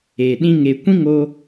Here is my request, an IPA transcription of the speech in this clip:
e˨ ɗ ĩ˧ ŋ e˨ kʷ ĩ˦ ŋ o˧

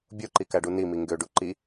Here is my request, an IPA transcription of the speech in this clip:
bʲ o ǃ i k æ ɖ u n i m i ŋ ɡ ø ɖ u ǃ i

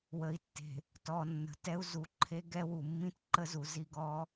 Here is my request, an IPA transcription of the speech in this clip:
w ə˨ i̯ tː e̤˨ | t ɔ˨ nː ə̤˨ t ɛ˦ u̯ z u˨˦ ǃʰ e˦ ɡ ɛ˦ w u˨ mː ĩ˦ t ǃ ə˦ z u˨ z i˦˨ ɡ ɔ˦

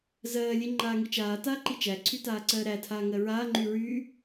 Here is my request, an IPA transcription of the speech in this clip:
z ɜː lʲ e ŋ͡ǃ aː ŋ i t͡ʃ aː t aː ǃ i t͡ʃ æ ǀʰ y t aː ǀ ɜː ɾ æ tʰ aː ŋ ɜ ɹ aː ŋ͡ǃ y ɹ y

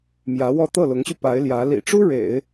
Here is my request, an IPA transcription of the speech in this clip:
m j ä˧˥ w ɔ˥˧ t̪ ɤ˥˩ l ʊ˧˥ ŋ ɕ y˧ p a˧˥ ɪ̯ l j ä˧˥ l ḭ˨˩ ʈ͡ʂ u˥ ɻ ḛ˨˩˦ ɪ̯

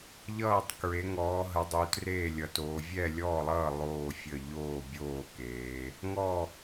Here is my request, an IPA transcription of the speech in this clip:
ʎ ʌː˥˨ tˤ k ɹ e˨˦ ŋ ɔː˨˦ ɦ ə˨˦ dˤ u˨˦ t r eː˥˨ lʲ ʌ˨˦ t oː˨˦ vʲ ɛ˥˨ lʲ ɔː˥˨ lˠ ʌː˥˨ lˠ oː˥˨ fʲ ə˥˨ ʎ oː˥˨ bʲ oː˥˨ k eː˨˦ | ŋ ɔ˥˨

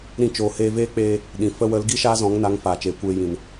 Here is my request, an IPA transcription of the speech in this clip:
ɾ ĩ˧ t͡ʃ oː˨ h eː˧ v eː˦ k͡p eː˧ | ɗ ĩ˨ f ə˧ w ə˨˦ l ɡ i˦ ʃ aː˦ z ɔ̃˨˦ ŋ n a˨˦ ŋ f aː˨ t͡ʃ eː˨ kʷ eː˧ j ĩ˨ n

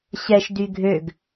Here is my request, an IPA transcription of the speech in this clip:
ɕ ɛ ʃ d y ɡʱ ø ɡ

